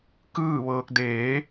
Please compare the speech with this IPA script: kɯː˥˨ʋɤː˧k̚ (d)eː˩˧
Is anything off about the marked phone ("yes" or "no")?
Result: no